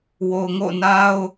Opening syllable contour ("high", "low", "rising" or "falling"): low